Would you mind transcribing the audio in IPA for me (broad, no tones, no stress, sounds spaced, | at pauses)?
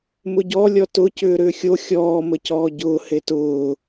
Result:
m ʊ ɟ ɔ lʲ ɔ t ʊ c ʏː ɾ ʏː xʲ o xʲ ɔː m ə c ɔː ɟ ʊː h e t ʊː